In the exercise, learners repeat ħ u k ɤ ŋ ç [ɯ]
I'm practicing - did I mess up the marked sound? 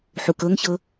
yes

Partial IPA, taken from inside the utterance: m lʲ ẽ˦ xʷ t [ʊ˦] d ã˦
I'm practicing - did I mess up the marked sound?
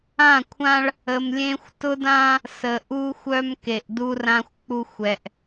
no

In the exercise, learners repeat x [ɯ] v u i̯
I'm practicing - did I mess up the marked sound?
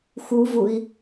yes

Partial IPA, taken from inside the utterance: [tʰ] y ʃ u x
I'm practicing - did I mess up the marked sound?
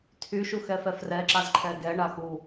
no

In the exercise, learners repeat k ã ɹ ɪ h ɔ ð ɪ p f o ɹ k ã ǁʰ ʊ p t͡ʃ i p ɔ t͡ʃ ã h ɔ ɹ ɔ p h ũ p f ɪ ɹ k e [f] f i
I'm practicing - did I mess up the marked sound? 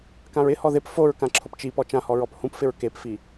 yes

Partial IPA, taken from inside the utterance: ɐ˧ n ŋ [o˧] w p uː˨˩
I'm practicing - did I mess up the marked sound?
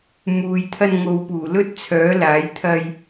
yes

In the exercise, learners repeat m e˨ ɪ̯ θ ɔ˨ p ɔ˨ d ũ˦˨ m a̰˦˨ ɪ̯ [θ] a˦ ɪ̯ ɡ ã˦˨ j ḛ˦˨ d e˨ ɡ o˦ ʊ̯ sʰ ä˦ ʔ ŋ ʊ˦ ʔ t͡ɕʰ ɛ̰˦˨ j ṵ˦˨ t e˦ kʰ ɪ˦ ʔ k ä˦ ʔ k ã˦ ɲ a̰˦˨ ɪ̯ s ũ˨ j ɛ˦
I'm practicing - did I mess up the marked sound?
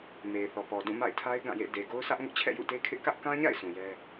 yes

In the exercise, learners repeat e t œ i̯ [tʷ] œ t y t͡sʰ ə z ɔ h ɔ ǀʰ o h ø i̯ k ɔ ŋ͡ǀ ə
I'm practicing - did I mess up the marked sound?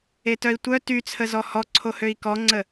no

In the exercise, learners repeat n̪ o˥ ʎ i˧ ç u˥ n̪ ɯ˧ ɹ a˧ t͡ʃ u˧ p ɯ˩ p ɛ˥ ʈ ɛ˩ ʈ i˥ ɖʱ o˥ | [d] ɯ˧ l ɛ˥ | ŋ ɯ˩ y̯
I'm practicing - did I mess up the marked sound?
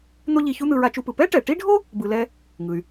yes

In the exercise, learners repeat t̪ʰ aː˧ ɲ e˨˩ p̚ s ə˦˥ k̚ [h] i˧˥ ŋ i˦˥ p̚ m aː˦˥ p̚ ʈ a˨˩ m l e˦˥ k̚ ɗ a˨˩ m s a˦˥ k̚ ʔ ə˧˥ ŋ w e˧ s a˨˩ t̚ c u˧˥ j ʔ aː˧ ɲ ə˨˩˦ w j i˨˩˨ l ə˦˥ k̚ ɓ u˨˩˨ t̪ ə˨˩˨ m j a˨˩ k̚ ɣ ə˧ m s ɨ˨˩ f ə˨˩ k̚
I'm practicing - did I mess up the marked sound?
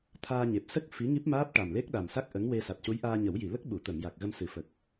yes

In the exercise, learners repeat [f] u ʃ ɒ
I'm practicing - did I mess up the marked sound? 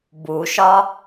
yes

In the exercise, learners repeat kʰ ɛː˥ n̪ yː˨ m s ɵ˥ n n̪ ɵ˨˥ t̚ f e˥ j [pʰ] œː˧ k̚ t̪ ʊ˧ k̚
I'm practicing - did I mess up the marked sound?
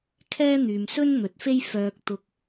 yes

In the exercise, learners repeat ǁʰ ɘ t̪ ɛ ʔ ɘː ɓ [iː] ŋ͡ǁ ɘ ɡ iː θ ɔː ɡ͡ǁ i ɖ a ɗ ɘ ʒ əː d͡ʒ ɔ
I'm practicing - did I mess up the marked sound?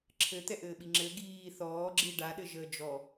yes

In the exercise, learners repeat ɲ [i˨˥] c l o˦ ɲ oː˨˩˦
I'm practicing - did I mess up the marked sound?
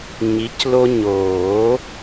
no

